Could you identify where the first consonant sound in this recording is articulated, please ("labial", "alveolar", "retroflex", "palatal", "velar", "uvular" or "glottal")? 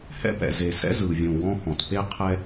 glottal